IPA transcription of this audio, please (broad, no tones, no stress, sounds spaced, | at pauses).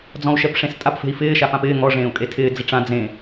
d͡z ɔ̃ u̯ ʃ ɛ p ʂ ẽ s tʼ a p f e̤ i̯ f ɪː ʃ a f ã p ɪː ŋ ɔ ʐ ẽː u̯ kʼ e tʰ ɪː d͡z ɪ ʈ͡ʂ ã d͡z ẽ